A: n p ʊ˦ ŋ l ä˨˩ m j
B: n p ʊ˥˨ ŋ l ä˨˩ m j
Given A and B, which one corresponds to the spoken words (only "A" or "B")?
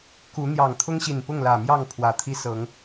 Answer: B